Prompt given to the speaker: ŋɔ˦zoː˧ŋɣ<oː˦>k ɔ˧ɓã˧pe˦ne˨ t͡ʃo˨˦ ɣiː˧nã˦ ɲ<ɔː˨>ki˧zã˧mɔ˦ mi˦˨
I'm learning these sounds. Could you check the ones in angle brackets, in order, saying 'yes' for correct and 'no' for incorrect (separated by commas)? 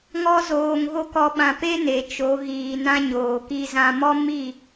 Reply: no, no